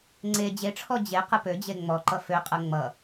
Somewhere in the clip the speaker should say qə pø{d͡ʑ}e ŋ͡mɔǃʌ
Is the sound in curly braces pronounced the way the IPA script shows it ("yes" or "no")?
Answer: yes